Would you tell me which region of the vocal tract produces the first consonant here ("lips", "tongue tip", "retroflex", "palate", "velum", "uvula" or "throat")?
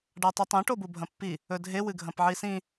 retroflex